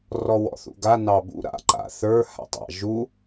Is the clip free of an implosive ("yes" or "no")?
yes